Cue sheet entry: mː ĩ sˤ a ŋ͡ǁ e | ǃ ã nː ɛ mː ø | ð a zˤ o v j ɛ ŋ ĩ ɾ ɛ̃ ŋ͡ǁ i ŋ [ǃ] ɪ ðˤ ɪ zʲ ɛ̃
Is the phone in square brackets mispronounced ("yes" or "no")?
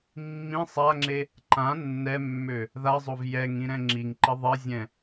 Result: no